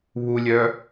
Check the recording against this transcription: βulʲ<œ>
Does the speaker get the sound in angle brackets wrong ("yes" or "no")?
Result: no